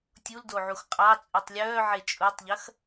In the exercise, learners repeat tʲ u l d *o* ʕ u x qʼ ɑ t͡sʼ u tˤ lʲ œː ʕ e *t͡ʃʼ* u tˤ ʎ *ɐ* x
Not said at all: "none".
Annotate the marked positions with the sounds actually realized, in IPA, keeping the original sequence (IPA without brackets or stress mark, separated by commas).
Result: o, t͡ʃʼ, ɐ